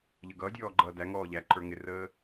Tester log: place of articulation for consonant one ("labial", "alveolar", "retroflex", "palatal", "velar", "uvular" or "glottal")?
palatal